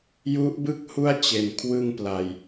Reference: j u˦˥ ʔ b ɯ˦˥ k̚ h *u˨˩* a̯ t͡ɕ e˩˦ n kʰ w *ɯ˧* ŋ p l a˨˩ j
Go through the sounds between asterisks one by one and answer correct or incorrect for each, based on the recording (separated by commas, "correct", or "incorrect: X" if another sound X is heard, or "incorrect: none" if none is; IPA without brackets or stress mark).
incorrect: u˦˥, correct